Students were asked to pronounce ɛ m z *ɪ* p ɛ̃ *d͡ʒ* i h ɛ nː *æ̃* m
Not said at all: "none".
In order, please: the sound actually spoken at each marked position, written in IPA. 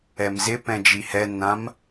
ɪ, d͡ʒ, ã

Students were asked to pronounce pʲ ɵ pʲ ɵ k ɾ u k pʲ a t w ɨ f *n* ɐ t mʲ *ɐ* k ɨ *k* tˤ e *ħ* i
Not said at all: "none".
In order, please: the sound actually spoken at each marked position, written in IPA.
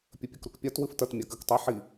t, a, k, ħ

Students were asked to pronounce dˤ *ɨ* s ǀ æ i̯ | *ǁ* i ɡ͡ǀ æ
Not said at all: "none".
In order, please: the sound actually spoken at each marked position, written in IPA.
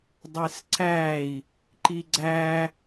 e, ǃ

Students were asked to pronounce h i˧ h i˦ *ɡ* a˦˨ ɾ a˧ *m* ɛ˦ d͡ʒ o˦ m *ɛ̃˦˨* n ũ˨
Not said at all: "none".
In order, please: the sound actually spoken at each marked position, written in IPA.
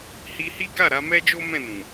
ɡ, m, ɛ̃˦˨

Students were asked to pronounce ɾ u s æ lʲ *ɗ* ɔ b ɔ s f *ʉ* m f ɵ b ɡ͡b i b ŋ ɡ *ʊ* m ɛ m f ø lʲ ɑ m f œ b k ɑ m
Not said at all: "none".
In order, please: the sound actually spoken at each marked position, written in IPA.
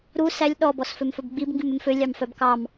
ɗ, ø, ʉ

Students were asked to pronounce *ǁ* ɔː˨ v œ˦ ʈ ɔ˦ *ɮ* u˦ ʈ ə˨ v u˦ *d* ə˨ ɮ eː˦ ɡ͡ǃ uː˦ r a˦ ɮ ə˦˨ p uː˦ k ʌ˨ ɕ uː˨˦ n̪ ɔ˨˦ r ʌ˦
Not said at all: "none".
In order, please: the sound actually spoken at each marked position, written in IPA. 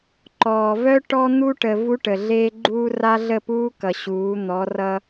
ǃ, n̪, ʈ

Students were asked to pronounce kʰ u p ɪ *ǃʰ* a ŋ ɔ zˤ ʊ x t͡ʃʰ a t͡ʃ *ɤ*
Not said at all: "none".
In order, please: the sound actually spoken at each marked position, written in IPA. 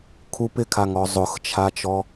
kʰ, ɔ

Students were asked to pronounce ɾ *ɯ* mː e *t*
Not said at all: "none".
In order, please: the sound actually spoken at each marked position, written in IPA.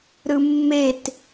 ɯ, t

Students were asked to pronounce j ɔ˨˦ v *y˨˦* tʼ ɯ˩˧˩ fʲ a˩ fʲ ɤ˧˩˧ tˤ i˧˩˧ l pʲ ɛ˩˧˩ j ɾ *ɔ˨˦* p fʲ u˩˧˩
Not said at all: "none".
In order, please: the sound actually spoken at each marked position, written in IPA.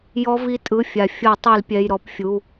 i˨˦, ɔ˧˩˧

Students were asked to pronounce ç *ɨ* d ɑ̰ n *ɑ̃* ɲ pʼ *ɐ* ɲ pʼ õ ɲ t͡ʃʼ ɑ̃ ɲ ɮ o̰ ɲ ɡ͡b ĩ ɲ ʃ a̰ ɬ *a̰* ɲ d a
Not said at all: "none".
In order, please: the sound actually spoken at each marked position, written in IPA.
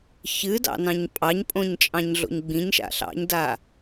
ɨ, ɑ̃, ɑ, ɑ̰

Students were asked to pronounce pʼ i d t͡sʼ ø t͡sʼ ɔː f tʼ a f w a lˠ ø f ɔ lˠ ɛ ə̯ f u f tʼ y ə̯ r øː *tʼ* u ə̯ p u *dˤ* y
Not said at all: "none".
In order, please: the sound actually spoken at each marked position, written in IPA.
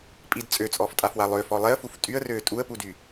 tʼ, d

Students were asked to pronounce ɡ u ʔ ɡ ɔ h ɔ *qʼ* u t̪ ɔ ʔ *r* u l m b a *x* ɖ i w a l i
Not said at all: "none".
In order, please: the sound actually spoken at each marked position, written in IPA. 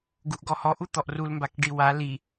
ʔ, r, k

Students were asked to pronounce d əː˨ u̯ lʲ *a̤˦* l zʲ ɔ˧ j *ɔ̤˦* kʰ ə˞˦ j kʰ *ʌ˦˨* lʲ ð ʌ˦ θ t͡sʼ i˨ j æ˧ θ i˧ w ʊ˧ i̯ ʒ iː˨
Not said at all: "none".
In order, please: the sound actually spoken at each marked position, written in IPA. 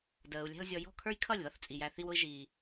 æ̤˦, ɔ̤˦˨, ʌ˦˨

